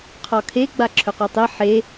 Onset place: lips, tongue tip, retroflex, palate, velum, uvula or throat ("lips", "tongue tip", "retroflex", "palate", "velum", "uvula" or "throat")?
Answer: uvula